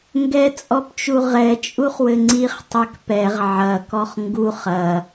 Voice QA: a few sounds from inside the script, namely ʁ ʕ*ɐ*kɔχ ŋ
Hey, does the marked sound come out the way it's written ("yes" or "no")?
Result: yes